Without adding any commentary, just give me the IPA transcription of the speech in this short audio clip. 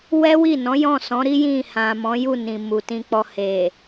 w ɛ˦ w i˦˨ n ɔ̃˨˦ j ɔ̃˦˨ s ɔ̃˨˦ ɾ i˦ j ĩ˦˨ h ã˨ m ɔ̃˨˦ j u˦˨ n ĩ˨ m u˨ t ĩ˧ k͡p ɔ˧ h e˨

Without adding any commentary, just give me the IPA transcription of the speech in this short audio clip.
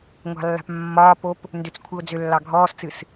ŋʷ ɑ̤ lː a̤ p mː ɒː p o p | n d ʏ t͡s kʷʰ ɨ ʊ̯ d͡z ʏ lː ɑ ɡʱ ɔː s t͡s ɨ s

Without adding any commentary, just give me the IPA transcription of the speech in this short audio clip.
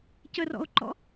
c ə r ɔ̰ o̯ ǃ ɔ̰

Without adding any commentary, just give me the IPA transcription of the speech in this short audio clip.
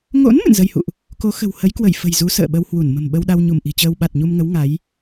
ŋ o̰˧˥ n m ɨ̰˧˨ n z ə˧ j h ṵ˧˨ ʔ | k o˨˦ x ə̤˨˩ w h ə˨˦ j k w ə˧˩ j f ə̤˨˩ j z u˨˦ s ə̰ː˧˨ ɓ ə˧ w h w u˧˩ n m ə̤˨˩ m ɓ ə˧ w ɗ a˧ w ɲ u˧˩ m ʔ i̤˨˩ t͡ɕ əː˧ w ɓ a˨˩ t̚ ɲ u˧ m ŋ ə˨˦ w ŋ a˨˦ j

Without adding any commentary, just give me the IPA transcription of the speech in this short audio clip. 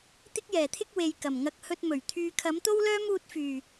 t̪ ɪ˥ k̚ j ɛː˨˩ t̪ʰ ɪ˥ k̚ w e˨ j k ɐ˨˩ m ŋ ɐ˧ k̚ h ɵ˧ t̚ m ɵ˨˩ ɥ t̪ʰ yː˨ kʰ ɐ˨˥ m t̪ o˥ w l œː˥ m uː˧ t̚ f yː˨˩

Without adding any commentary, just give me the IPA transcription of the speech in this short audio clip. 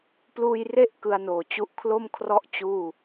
p l uː˧ j r e˥˩ ʔ k ɯ˧ a̯ n oː˨˩ t͡ɕ u˦˥ ʔ kʰ l o˥˩ m kʰ r ɔ˥˩ ʔ t͡ɕ uː˥˩

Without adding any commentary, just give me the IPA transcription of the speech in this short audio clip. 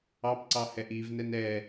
ɑ p ǀ ɑ h ɛ ʔ i v n ɛ n ɛ

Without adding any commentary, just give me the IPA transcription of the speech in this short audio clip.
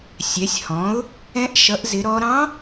sʲ ɛ˩˥ sʲ h ɔ̃˩˥ ʊ̯ | ɛ̃˧˥ ʔ ʃ ʌ˩˥ ʔ z ɪ˩˥ ɾ ɔ˧˥ ɾ ɑ̃˧˥

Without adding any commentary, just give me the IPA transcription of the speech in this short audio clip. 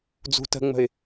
d͡z ṳ t ə̤ ŋ͡m ə̤ ɪ̯

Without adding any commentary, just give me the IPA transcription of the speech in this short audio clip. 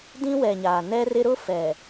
d ĩ˦ w ɛ˨ ɲ aː˨ n ɛ˦ r ɪ˦ ɾ ʊ˦ f ɛ˨

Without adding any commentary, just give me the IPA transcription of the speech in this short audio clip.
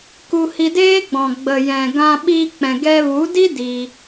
k u˧ h i˧ d eː˦ ɡ͡b ɔ̃˨ ɡ͡b ə˨ j ɛ̃˨ ɡ ã˧ ɓ i˧ k͡p ɛ̃˨ ɡ ɛ˧ v u˨˦ d i˦ d i˧

